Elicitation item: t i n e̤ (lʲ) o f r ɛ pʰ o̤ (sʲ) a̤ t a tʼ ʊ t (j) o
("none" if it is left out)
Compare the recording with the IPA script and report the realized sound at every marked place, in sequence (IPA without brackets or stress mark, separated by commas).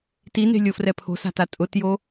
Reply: lʲ, s, j